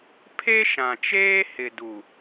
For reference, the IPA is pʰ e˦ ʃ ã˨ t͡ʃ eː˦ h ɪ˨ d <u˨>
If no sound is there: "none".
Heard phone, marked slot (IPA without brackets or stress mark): u˨